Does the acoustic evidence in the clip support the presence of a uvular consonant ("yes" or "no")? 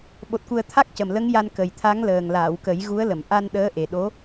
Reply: no